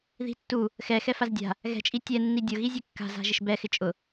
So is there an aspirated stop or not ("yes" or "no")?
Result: no